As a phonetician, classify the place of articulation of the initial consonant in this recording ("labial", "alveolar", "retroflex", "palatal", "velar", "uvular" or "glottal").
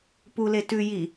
labial